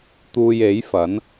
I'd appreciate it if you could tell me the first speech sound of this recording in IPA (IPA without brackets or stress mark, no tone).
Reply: t̪